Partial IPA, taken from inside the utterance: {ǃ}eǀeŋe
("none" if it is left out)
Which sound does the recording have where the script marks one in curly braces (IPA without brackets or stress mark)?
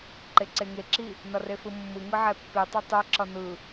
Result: ǃ